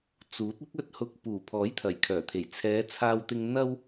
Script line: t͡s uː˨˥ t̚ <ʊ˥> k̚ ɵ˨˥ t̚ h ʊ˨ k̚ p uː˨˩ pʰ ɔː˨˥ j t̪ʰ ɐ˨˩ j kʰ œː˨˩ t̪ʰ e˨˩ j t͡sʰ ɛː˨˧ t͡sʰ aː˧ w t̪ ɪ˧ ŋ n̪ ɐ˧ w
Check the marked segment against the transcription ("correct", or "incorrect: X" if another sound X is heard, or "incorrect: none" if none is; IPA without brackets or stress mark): correct